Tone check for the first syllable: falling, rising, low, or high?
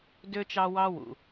low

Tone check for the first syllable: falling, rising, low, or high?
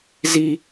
high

